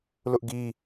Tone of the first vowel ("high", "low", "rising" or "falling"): high